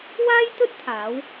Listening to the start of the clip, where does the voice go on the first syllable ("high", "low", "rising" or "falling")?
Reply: high